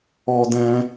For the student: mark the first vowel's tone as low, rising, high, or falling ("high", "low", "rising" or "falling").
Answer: high